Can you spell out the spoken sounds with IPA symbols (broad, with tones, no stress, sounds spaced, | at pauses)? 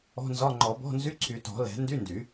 ɔ̤˧˥˧ n z ɒ˧˥˧ ŋ͡ǃ ɔ˨˩˦ b ɔ̤˧˥˧ n z y˧˥˧ ǀʰ y˨˩˦ t ɔ̤˨˩˦ l ɛ̤˨˩˦ n d y˧˥˧ n d y˨˩˦